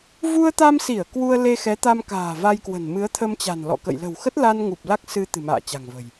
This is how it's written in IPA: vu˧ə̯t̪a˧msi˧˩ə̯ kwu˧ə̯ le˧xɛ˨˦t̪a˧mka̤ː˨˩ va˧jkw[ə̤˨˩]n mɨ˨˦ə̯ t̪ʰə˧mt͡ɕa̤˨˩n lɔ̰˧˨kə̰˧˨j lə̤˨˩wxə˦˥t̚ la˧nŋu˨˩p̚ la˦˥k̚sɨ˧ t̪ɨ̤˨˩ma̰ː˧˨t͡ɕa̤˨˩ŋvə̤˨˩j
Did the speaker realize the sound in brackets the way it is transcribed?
yes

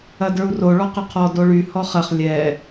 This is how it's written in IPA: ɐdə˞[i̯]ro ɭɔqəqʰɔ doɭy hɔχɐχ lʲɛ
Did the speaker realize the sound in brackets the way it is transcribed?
no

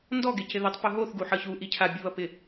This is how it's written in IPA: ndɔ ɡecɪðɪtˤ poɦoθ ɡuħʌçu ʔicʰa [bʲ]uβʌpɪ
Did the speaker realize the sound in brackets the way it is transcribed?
yes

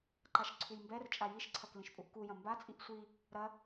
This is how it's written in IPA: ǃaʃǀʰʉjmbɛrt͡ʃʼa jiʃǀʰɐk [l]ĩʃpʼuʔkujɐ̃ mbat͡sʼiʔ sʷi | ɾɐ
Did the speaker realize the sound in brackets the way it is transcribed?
yes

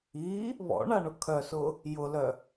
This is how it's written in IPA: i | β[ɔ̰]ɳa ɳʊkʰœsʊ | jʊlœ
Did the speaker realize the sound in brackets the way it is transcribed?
yes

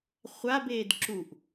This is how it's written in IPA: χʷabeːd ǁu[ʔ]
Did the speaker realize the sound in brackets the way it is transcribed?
yes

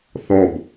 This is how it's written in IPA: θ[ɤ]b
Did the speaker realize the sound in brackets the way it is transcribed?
no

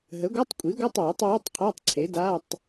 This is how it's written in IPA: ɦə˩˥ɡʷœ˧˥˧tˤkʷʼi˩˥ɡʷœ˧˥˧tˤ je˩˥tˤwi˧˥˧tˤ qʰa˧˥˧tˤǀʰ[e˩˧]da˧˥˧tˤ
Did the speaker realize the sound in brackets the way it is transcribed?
no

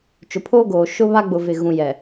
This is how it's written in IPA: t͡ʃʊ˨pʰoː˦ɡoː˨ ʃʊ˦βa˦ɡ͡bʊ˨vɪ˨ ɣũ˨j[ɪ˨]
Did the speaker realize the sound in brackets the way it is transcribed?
no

